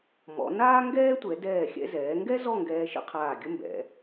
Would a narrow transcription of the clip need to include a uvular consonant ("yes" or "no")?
yes